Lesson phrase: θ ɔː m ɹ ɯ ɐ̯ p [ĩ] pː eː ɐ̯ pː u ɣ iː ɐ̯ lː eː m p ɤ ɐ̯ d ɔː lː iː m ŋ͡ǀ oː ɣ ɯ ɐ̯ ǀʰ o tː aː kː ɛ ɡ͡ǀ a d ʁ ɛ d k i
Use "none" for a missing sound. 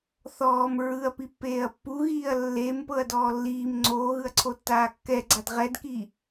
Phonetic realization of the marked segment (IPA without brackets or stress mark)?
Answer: i